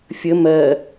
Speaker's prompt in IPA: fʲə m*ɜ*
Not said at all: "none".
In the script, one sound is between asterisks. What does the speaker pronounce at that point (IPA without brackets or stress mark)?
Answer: ɜ